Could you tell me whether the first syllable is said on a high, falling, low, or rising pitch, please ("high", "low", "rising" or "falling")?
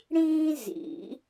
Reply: high